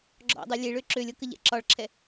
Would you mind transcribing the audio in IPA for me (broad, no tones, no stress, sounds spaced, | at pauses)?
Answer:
ɡ͡ǁ ɔ̰ dˤ ɛ lʲ e ɭ ø ǁ ø lʲ ɤ k ə ʎ ɛ̰ ǁ ɒ ɭ ǁʰ ɛ